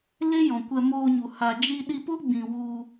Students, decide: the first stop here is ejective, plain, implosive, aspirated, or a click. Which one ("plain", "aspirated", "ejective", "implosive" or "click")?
plain